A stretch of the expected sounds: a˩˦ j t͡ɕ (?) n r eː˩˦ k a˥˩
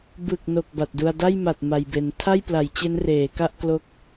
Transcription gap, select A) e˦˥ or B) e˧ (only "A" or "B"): A